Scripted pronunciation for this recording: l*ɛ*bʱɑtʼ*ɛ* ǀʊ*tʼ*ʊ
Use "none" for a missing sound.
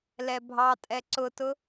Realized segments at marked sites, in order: ɛ, ɛ, t

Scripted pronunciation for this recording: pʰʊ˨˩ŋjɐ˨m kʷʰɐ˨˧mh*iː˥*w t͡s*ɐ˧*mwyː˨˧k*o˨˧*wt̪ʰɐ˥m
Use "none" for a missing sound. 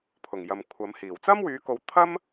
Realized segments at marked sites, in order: iː˨˩, ɐ˥, o˨˧

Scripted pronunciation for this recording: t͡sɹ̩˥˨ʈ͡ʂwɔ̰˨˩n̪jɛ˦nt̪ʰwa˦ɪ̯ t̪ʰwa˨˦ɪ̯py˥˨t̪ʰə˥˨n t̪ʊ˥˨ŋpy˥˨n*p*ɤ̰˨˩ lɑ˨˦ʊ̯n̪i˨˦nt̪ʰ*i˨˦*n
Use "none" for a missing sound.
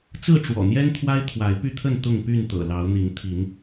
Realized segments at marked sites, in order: t̪, i˨˦

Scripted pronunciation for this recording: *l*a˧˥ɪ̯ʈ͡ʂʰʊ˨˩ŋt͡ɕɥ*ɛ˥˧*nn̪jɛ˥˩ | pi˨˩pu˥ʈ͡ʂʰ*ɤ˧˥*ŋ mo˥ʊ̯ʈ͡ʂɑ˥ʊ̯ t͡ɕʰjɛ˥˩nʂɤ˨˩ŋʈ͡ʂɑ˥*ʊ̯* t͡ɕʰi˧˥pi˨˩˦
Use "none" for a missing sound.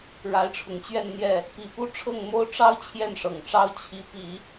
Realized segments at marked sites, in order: ɻ, ɛ˥˧, ɤ˥˩, ʊ̯

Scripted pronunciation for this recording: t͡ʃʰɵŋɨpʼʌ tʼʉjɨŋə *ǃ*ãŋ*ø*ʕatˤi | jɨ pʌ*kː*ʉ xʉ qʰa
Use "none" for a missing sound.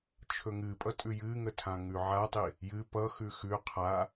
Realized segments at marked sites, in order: tʰ, ʉ, x

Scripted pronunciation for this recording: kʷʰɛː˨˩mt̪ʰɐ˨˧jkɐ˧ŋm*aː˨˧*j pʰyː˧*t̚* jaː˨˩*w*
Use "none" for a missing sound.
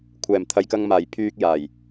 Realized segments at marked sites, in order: aː˨˩, k̚, j

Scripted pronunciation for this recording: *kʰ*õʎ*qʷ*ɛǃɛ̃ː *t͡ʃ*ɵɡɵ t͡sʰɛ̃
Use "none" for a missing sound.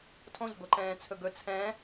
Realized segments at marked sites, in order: tʰ, ɡʷ, t͡sʰ

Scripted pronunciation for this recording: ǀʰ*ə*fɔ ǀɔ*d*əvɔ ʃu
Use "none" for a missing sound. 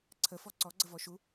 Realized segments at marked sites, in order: ə, ɡ͡ǀ

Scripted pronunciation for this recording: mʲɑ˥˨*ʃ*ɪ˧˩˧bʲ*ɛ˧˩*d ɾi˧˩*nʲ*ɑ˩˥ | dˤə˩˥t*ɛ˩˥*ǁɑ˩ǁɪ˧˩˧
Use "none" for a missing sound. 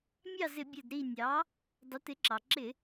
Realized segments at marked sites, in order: z, ɛ˧˩, nʲ, ɪ˩˥

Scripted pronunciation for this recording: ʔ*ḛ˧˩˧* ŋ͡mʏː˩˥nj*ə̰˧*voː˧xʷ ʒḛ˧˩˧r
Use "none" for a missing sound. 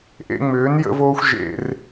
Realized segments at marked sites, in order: ḛ˧, ə̰˧

